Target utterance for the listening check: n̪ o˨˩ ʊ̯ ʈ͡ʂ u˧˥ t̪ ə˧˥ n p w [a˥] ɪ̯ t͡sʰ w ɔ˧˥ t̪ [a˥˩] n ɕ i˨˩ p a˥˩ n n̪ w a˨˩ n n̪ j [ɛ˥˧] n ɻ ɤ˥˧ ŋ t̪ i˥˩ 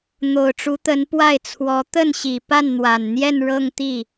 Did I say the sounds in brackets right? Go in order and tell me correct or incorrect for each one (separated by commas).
incorrect, incorrect, correct